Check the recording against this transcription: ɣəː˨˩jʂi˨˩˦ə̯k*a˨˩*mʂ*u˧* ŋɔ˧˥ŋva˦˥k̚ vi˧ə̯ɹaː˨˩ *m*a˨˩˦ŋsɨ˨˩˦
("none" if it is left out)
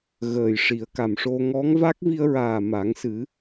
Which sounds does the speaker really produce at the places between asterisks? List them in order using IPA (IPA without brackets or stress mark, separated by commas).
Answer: a˨˩, o˧, m